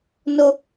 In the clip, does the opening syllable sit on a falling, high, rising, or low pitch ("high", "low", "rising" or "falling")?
high